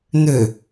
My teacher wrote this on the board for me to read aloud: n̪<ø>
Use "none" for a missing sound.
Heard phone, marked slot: ø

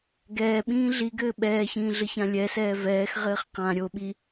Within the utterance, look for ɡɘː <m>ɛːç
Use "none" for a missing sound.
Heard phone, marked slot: ɓ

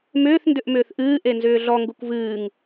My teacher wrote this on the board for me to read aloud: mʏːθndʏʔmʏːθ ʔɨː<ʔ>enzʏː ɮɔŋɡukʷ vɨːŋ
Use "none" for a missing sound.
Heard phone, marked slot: ʔ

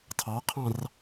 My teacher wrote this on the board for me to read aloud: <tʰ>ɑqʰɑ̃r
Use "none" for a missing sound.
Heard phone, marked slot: tʰ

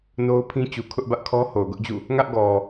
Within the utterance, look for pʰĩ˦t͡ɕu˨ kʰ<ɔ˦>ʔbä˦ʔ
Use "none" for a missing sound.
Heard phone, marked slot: ʊ˦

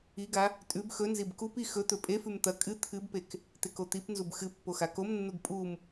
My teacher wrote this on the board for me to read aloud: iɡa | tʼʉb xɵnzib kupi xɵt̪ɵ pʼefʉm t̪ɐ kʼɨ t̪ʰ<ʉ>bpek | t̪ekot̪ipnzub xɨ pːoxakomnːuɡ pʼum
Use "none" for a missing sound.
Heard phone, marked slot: ɨ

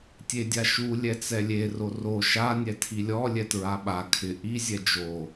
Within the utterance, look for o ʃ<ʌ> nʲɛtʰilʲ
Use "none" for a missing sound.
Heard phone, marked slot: a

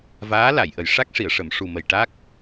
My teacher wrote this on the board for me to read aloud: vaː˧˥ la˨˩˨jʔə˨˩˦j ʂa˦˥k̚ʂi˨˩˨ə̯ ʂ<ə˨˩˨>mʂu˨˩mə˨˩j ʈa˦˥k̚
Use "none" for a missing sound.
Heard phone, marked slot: ə˨˩˨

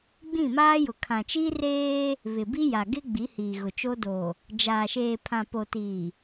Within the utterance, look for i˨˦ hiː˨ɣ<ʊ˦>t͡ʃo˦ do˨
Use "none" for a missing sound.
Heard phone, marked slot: ʊ˨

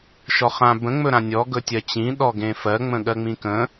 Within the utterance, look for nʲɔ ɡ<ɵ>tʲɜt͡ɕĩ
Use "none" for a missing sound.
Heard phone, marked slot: ɵ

